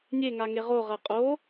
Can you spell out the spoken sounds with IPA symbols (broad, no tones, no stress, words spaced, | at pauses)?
nʲeŋa ŋeʁoʁɐ qʼo